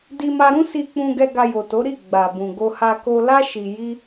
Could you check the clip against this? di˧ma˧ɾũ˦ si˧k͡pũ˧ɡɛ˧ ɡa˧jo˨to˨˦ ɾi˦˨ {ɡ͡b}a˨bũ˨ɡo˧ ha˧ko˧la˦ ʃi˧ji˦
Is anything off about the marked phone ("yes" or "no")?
no